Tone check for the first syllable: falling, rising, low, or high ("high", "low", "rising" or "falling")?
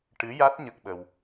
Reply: rising